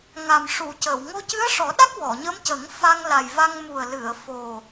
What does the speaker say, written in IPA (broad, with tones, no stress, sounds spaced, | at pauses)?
ŋ a˨˩ m ʂ u˨˩˨ c ə˨˩˨ w ŋ o˧ c ɨ˧˥ ə̯ ʂ ɔ˨˩˦ ɗ a˦˥ k̚ w ɔ˨˩˨ ɲ ə˧˥ m c ə˨˩˦ ŋ f a˧ ŋ l a˨˩ j v a˧ ŋ m u˨˩ ə̯ l ɨ˨˩˨ ə̯ f o˨˩